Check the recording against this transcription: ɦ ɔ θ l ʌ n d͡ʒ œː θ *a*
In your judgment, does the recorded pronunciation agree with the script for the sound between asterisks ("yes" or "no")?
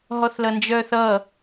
no